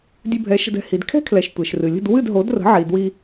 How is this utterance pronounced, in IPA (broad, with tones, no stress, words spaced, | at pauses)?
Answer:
dʲɨ˧bʱɛ˩˥ʃə̤˧dɛ̤˩ hi˩dkʰɛ̤˥kʰlɛ˩ʃ tʷe˩ʃrɨ˩ lʲə̤˥˩d wɨ˥˩d ɦo˩˥drə̤˩˥ ʕi˩ dwi˧